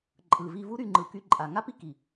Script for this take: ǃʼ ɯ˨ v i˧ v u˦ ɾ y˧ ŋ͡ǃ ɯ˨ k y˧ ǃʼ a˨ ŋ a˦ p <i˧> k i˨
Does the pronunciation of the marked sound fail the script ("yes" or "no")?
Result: yes